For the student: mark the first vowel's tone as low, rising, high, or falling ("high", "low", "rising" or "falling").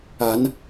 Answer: rising